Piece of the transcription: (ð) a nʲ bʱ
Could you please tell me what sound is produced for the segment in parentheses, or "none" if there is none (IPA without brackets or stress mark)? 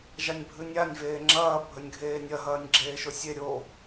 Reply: ʒ